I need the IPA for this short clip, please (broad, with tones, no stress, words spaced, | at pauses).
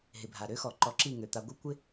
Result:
ɦɪ˨bʱa˨ ɾø˦xɔ˨ ǃɔ˧ǁi˦˨ ŋø˨ t̪a˧ɡʷɯ˦ kʷɪ˦